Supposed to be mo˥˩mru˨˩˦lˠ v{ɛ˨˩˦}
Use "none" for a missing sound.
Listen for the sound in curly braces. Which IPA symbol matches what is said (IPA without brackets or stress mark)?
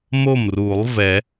ɛ˨˩˦